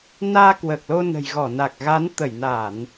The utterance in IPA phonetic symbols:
n aː˧ k w əː˨˩ k̚ l o˧ n ə̤˨˩ j ɣ ɔ˧˩ n a˨˩ k̚ ɣ a˨˦ n t̪ ə˧˩ j n aː˧˩˨ n

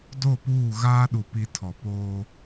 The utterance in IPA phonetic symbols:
d o˦˨ p uː˦˨ ɣ aː˦ ɗ u˨ p i˨ tʰ ɔ˨ p oː˦

